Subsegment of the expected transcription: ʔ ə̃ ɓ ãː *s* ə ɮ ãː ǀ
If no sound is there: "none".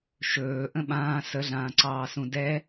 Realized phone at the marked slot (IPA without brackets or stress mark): s